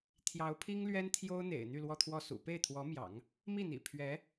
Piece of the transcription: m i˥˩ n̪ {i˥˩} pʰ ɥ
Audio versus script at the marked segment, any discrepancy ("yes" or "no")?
yes